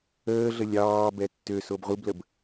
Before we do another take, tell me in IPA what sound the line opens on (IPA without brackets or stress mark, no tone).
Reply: əː